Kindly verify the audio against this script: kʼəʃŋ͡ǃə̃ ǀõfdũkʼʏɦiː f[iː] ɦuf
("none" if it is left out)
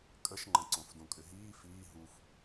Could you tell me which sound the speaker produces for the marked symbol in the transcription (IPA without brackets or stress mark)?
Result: iː